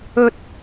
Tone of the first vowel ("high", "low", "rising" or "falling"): high